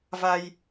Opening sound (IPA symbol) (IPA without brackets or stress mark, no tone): v